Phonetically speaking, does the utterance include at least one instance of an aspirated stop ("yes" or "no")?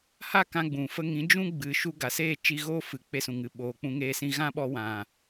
no